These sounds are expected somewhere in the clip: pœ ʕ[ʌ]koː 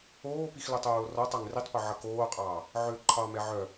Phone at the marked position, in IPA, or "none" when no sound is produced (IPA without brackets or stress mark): ʌ